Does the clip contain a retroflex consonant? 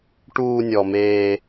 yes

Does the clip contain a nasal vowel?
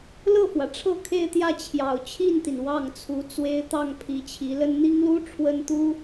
no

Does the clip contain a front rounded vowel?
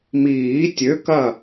yes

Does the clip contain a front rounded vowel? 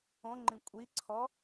no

